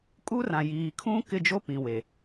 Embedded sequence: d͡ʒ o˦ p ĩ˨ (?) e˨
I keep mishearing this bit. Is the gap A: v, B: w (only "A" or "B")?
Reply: B